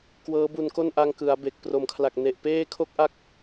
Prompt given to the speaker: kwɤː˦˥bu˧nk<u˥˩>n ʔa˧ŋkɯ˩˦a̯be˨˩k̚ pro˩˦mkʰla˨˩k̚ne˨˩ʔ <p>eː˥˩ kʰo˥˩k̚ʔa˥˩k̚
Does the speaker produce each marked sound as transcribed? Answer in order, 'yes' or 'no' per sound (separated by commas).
no, yes